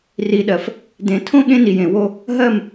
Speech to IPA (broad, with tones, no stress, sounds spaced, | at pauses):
r i˨ ɗ ɜ˨ f | d ẽ˨ tʰ õ˦ ɠ ẽ˦ n i˨ j ẽ˨ w o˦ | ɦ ɜ˦˨ m